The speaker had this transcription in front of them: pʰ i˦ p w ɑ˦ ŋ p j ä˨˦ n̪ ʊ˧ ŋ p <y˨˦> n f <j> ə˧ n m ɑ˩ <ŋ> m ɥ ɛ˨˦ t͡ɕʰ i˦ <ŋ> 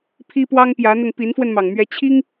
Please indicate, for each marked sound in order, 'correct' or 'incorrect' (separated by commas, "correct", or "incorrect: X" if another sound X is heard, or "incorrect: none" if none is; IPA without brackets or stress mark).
incorrect: i˨˦, incorrect: w, correct, correct